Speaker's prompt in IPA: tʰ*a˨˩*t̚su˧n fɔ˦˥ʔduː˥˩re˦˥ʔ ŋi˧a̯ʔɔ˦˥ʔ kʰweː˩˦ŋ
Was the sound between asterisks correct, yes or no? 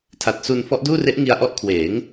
yes